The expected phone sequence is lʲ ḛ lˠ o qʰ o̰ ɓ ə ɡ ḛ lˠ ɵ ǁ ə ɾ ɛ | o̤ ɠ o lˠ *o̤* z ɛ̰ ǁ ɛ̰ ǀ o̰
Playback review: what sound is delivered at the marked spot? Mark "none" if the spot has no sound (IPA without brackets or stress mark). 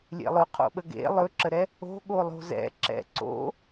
o̤